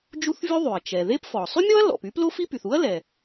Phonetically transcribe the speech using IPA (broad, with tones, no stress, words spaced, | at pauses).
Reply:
d͡ʒu˥θvʲu˥ðˤy˩ɐ̯ t͡ʃɛ˩ ðe˥pfɔ˩ sˤy˥mʲɔ˥ɐ̯ lɔ̰˩p y˥plo˥fi˥py˩θ u˥ɐ̯lɛ˩